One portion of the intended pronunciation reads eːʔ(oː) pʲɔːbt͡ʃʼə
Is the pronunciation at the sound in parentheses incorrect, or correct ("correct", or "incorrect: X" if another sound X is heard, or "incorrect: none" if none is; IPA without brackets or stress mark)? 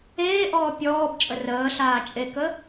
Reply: incorrect: ɔː